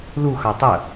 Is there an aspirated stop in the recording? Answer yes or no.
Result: no